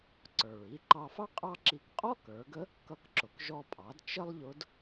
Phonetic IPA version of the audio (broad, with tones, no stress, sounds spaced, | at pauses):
ǀ ə˞˩ ɹ i˧ ǃ ɑ˧ f ɑ˥ qʼ ɑ˥ ǁ i˧ k qʼ ɔ˥ k ə˞˩˧ ɡ ə˧˥ | k ʌ˧ k ǁ ʊ˩ k ʒ ɔ˧ pʼ ɑ˩˧ d t͡ʃ ə˥ lˠ ʎ ʊ˧˥ d